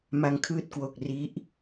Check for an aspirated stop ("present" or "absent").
present